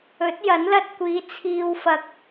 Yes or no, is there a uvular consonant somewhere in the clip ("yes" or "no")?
no